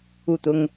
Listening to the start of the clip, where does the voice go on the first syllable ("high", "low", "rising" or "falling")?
falling